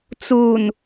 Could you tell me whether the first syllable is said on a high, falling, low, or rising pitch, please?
low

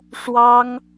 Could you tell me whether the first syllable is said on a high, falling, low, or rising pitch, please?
high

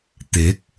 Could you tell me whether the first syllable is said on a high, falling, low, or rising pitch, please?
rising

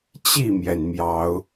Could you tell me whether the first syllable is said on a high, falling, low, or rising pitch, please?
falling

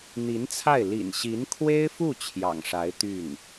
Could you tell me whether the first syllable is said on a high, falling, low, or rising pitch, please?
rising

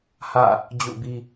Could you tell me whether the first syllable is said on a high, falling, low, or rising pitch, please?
falling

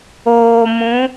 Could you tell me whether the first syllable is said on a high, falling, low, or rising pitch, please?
low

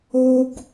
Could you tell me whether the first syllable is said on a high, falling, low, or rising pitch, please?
high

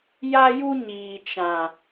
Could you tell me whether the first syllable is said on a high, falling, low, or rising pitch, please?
high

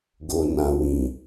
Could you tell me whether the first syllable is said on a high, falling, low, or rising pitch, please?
low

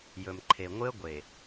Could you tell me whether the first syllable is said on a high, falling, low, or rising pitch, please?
low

